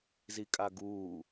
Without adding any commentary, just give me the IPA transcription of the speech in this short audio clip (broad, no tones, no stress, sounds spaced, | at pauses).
z i kʼ a ɡ uː